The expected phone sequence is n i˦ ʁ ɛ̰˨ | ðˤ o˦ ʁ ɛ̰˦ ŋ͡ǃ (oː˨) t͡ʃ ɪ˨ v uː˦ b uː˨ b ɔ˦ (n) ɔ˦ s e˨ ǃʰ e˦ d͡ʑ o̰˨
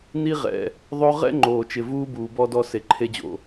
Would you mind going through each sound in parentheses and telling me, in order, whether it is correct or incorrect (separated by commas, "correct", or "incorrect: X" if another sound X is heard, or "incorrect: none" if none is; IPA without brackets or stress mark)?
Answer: correct, incorrect: d